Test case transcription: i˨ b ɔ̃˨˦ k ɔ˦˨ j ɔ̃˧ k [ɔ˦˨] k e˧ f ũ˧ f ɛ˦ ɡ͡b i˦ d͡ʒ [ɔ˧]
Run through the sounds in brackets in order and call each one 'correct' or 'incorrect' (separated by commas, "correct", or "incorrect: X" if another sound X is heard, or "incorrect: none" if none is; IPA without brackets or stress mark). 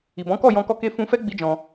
incorrect: ɔ˧, incorrect: ɔ̃˧